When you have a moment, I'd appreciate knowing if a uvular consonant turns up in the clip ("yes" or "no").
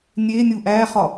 yes